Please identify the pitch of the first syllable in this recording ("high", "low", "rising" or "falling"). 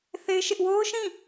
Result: high